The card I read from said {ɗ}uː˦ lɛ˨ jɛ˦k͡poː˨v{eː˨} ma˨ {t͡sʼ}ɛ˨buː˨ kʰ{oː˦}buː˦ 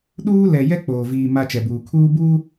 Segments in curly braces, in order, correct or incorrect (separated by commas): correct, incorrect, incorrect, incorrect